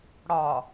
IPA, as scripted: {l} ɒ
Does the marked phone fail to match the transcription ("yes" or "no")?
yes